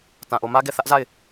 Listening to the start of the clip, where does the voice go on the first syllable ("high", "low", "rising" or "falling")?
low